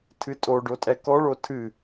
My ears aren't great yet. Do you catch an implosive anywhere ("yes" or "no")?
no